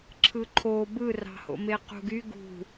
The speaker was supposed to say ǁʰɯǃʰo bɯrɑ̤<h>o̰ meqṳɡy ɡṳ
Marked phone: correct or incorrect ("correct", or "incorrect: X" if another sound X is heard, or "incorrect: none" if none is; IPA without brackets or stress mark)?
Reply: correct